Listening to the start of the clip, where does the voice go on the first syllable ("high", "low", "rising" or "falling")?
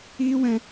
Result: high